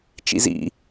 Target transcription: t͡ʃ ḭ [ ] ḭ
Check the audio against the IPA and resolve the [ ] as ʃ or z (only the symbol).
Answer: z